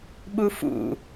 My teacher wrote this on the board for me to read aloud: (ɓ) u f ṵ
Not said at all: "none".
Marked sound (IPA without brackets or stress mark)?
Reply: ɓ